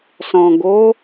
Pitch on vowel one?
low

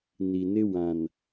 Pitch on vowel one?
low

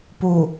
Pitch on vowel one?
low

